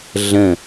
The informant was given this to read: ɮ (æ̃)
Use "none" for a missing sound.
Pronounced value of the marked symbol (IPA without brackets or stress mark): ə̃